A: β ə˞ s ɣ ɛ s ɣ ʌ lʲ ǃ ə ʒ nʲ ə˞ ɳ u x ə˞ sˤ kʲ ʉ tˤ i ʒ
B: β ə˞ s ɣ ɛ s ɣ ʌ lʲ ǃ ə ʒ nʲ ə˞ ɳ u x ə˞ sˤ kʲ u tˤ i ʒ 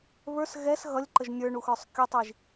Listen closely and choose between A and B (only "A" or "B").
B